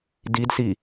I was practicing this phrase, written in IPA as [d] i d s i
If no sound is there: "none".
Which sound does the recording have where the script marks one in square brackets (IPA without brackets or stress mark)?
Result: d